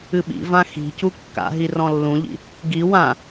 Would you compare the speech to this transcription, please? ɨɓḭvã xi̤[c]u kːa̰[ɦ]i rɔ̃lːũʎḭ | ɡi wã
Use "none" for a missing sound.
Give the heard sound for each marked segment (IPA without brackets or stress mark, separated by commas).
c, ɦ